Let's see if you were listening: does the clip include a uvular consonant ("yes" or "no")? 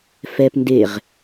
yes